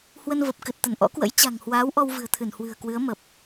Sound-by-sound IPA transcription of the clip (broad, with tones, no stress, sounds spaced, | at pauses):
h w ə˧ n v ə˨˩ p̚ k ɨ˨˩ t̚ t̪ ə˧˩ n ʔ ɔ̰˧˥ k w ə̰˧˥ j t͡ɕ a̤˨˩ ŋ h w aː˨˦ w ʔ ɔ˧ w v ɨ̤˨˩ ə̯ t̪ʰ ɨ˧˩ n h w ɨ̤˨˩ ə̯ k w ɨ˨˦ ə̯ m ə˨˩ p̚